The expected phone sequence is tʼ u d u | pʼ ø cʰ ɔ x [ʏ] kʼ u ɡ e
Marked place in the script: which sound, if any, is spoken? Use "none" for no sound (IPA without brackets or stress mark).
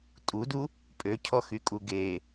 y